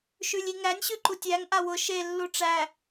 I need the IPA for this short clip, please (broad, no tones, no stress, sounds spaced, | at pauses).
ʃ ʉ lʲ i ŋ æ nʲ ɕ ʉ ǃ u tʲ æ ŋ ʔ a w ʊ ʃ e lː u ʈ͡ʂ æ